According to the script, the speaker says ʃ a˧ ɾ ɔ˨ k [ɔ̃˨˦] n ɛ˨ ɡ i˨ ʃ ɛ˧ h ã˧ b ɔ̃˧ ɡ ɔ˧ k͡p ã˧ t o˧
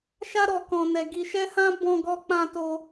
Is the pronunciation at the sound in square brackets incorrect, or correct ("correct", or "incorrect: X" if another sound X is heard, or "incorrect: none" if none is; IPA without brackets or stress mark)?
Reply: incorrect: ɔ̃˨